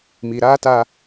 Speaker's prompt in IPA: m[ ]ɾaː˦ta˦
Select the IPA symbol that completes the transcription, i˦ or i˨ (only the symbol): i˨